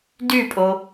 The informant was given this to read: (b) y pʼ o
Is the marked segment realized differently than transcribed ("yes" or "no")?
yes